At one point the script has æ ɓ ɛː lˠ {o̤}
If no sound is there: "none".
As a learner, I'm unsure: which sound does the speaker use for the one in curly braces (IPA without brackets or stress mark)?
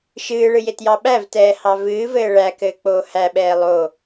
o